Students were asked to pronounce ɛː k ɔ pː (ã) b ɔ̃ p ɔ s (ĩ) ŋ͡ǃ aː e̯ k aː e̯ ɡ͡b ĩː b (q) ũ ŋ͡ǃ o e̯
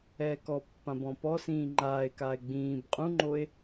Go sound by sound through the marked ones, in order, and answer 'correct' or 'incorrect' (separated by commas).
correct, incorrect, incorrect